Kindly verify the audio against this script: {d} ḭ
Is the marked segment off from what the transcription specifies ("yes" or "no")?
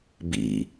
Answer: yes